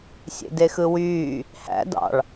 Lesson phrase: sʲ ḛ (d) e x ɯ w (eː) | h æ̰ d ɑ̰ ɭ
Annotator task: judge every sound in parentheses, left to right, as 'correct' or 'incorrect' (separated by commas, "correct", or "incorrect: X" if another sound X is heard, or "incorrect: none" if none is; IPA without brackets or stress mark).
correct, incorrect: yː